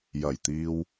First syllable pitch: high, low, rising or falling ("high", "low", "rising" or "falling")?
low